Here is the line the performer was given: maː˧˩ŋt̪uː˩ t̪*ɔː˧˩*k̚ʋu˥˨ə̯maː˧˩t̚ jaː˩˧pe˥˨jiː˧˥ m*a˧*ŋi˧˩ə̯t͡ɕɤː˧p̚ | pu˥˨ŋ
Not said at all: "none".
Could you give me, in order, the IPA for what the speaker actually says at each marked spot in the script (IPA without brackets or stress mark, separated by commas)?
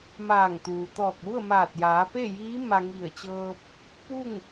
ɔː˧˩, a˧